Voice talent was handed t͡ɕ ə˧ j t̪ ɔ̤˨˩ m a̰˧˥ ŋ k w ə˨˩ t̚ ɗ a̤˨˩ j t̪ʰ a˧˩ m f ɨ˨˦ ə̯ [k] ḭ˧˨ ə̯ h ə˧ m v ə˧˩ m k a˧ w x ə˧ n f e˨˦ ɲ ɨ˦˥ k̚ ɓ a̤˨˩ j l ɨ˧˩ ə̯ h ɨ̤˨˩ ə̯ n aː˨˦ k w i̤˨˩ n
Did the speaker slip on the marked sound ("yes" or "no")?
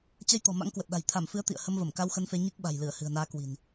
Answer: yes